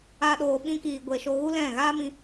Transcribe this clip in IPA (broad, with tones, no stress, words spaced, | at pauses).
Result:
a˦ɗoː˧ ɓĩ˦kiː˧ ɡʷe˨ ʃo˧ɣu˦lɛ̃˦˨ ɣaː˦mĩ˧